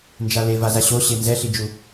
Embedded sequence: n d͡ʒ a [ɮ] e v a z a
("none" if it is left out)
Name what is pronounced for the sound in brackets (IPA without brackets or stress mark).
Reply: l